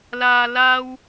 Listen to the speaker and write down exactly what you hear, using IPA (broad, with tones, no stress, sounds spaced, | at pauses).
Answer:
l aː˧ l aː˥ w